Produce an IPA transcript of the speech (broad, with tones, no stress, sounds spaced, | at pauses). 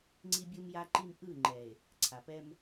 ŋ͡ǀ i˦ bʲ ɯ˦ m j a˦ ǃ i˦ m ʔ ɯ˦˨ ŋ͡ǃ ɛ˨ e̯ | ǀʰ a˨ p ɛ˦ m